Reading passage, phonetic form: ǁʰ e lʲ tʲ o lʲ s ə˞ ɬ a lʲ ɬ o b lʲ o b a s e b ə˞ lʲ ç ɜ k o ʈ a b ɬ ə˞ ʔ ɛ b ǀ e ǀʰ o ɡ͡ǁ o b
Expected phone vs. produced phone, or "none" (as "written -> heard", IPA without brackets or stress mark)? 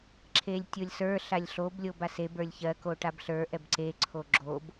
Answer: none